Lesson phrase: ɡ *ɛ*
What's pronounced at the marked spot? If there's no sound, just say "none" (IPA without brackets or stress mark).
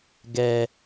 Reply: ɛ